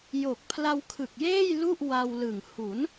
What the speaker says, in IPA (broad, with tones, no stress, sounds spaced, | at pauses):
j o˨˩ k̚ pʰ l a˧ w kʰ ɯ˨˩ k̚ j eː˥˩ j l u˥˩ ʔ w a˧ w l ɯ˨˩ ŋ h u˩˦ n